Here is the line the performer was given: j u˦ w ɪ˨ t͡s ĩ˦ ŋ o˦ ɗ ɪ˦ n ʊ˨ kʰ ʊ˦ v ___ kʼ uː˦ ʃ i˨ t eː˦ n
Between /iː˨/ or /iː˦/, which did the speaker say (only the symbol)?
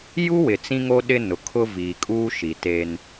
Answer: iː˨